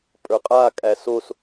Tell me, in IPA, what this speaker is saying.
pʼ ə˞ qʼ a kʼ æ s o s

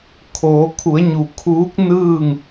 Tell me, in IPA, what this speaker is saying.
kʰ oː˩˧ kʰ u˩˧ ə̯ ɲ u˩ kʰ uː˧˥ k̚ n ɯː˥˨ ŋ

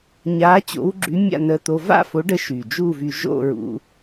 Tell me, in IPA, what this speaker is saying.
ɲ a˨˥ t͡ɕ o̰˨˥ w ɡ͡ǁ y˨˥ mʲ a̰˥˨ n ə˧ t̪ o˧ v a̰˥˨ f o˨˥ ɖ ə˨˥ ʃ y˨˩ d͡ʒ u˥˨ v y˧ ʒ o̰˥˨ ɹ ṵ˧

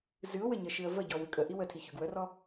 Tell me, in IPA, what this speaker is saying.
z ɨ ʊ̯ w ɘ ɲ ə ʃ ɨ ə̯ v ə ɟ ɔ w ʉ kʼ ə ʔ i w ə tʰ i ç ʉ ɡ w ə r ɔ

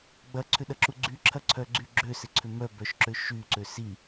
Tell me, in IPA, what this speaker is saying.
ɡ͡b ɐ ǀʰ ʏ ɗ ɐ ǁ u ɡ͡ǀ y ǁʰ ɐ ǀʰ œ ɡ͡ǀ y ɡ͡ǁ ø s ɪ ǀʰ ʏ m œ b œ ʃ ǁ ø ʃ y ǀ ø s i

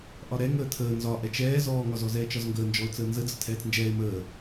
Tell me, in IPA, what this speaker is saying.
ʔ ɒ ɾ ɛ ŋ əː tʰ əː n z ɒ ʔ ɛ t͡ʃ ɛː z ɔː ŋ ɒ z ɔ z ɛː t͡ʃ ɒ z ŋ ɡ əː n d͡ʒ ɔ ʊ̯ t͡s əː n z ə d͡z ə tʰ ɛː t͡s n d͡ʒ ɛː ɪ̯ m əː

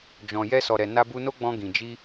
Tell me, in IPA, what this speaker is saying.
d͡ʒ ɔ̃˨ j ɛ˧ s ɔ˨ ɾ ɛ˨ n a˧ b u˧ n o˦ ɡ͡b ɔ̃˧ ɡ ĩ˨ d͡ʒ i˧

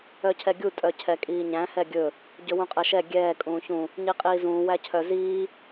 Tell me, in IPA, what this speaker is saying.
œ cʰ ɛ ɡʲ u tʼ œ cʰ ɛ kʼ iː ɲ æ̃ h ɛ ɡʲ ɵ | ɟ ɵ w ũ qʼ ɛ ʃ ɛ ɡʲ ɛː kʼ ũː ç ũ | ɲ i qʼ iː z ũː w æ cʰ œ z iː

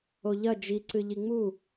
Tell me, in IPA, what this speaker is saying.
o ʎ ɐ d͡ʒ i ǀ ɨ ʎ i ŋ͡m u

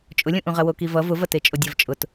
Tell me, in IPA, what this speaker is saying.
t͡ʃʼ ʊ lʲ ũ ʔ ũ ʁ ɐ w o k i v ʌ v ʊ v ɐ t e t͡ʃʼ o dʲ ɐ v t͡ʃʼ ʊ t

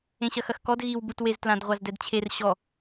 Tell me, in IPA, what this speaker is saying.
ẽ ɕ ɐ x ɐ x k ɔ d ɣ i w b u t w e z t l ã d ʁʷ a z d ɛ d t͡ɕʰ e r ɕ ɔ

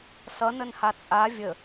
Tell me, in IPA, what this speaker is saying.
s ʌ n ə n h a t͡sʼ a vʲ ə

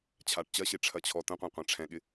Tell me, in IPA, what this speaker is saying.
t͡ɕʰ a ʈ t͡ɕ ɐ ɕ e ʈ͡ʂʰ ɐ t͡ɕʰ ɔ t ə̃ qʷ œ̃ qʷ ã ʈ͡ʂʰ ɛ̃ ɠ ɪ

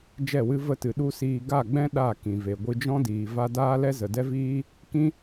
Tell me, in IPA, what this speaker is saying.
d͡ʒ ɛ˦˨ w ɨ˦ v ə˧ t ɨ˨ ɗ u˦ s iː˧ ɡ a˦˨ ɡ͡b ɛ̃˦ ɗ a˦˨ k ĩ˨ v e˨ ɡʷ ɨ˧ d͡ʒ ɔ̃˦ d iː˨ v a˦ d aː˦ l ɛ˦ z ə˨ d ɛ˦ v iː˦ | k ĩ˦

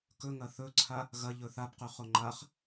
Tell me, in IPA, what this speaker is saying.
k ɵ ŋ ɐ θ ɵ ǀʰ a | ɣ ɐ ʎ ɵ θ a b q ʉ χ o ŋ͡ǃ a χ

